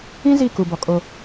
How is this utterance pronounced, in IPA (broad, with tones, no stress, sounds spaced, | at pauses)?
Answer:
ĩ˦ z i˦˨ k u˨ b ɔ˨ kʼ o˦